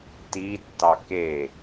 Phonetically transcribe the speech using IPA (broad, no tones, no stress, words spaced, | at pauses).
titːɑ ke